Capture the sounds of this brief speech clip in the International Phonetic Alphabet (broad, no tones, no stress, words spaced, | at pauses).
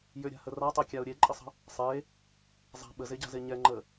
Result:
jʏɾʲa̤hə ratˤekʲaʊ̯ ɾʲeǃʼəsˤə̤ | sˤe | zˤa̤ ɓəzeɟa̤ze ɲɛŋ͡ǃə